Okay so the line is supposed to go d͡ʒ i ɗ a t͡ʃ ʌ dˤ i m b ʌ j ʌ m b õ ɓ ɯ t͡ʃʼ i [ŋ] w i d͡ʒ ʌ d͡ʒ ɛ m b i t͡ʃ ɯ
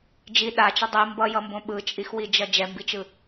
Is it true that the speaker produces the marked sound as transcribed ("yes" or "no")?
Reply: no